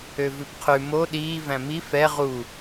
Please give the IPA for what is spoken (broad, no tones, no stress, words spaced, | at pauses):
øvʉpqʰʉ mo ɗiː væ̃mi fɛ ʁu